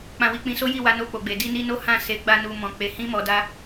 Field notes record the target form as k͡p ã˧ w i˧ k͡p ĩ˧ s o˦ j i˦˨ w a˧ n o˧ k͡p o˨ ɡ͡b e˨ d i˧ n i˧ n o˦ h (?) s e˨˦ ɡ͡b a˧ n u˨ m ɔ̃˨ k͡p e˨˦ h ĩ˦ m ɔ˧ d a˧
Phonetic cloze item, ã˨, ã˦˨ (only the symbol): ã˦˨